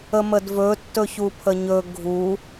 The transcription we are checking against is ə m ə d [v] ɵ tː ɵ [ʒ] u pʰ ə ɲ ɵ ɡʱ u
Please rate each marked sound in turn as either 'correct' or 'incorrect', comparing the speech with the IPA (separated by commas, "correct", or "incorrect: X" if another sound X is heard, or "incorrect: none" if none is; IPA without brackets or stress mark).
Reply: correct, incorrect: ç